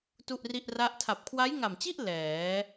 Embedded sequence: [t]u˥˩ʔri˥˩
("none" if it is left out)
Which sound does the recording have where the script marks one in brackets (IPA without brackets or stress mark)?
t